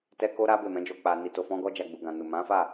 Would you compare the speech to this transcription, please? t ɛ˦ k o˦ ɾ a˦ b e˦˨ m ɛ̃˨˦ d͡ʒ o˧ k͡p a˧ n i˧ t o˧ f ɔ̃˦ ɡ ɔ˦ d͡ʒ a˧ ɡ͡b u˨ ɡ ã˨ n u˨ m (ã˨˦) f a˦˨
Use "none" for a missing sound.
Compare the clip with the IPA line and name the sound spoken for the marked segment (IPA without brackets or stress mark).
ã˨˦